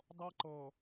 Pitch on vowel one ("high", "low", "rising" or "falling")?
high